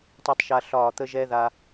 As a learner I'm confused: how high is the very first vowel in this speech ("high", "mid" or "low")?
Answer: high